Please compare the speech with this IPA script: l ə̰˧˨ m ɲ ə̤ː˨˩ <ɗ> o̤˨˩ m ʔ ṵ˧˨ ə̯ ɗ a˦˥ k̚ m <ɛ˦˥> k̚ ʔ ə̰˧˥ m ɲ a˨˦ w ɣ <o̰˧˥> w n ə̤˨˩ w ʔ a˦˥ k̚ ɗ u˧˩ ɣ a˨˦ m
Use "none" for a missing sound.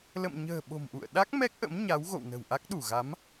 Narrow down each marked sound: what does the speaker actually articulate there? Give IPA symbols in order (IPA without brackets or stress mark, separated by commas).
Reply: ɓ, ɛ˦˥, o̰˧˨